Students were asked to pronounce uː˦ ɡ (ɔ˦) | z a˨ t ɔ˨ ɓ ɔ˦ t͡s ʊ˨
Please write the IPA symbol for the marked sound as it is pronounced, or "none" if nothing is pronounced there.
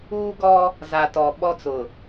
ɔ˦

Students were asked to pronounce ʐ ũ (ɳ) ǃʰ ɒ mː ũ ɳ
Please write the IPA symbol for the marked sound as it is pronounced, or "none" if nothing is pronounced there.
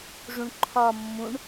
ɳ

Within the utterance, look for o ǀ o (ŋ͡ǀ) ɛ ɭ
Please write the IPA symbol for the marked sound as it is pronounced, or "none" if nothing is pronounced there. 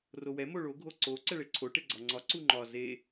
ǀ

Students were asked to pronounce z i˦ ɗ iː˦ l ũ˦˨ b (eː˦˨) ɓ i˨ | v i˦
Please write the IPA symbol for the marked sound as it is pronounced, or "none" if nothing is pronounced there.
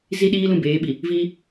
eː˨˦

